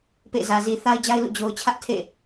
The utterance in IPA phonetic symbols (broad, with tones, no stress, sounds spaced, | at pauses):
p ḛ˦˨ z ä˨ z i˨ θ a˦ ɪ̯ d͡ʑ a˦ ɪ̯ l ṵ˦˨ d͡ʑ o˨ ʊ̯ t͡ɕʰ ä˦ ʔ tʰ ḛ˦˨